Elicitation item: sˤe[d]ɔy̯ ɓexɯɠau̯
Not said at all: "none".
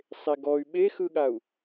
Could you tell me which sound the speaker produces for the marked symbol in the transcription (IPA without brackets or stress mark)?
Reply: ɡ